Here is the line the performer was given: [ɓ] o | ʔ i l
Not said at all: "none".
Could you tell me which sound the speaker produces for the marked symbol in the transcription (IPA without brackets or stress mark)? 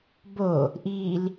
b